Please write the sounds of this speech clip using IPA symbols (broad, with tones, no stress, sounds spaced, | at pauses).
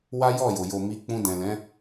w a˦ j ɔ˦˨ j o˨ j o˨ m i˨˦ k͡p ũ˧ d ɛ̃˨ l ɛ̃˨˦